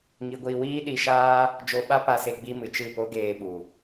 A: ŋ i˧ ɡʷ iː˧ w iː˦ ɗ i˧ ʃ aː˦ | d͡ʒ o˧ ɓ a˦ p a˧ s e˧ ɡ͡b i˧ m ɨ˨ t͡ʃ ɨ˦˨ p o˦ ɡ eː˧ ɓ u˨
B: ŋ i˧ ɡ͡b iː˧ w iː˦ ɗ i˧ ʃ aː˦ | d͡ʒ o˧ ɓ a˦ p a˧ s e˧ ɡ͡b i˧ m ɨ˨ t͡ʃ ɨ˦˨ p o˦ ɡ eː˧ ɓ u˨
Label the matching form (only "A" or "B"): A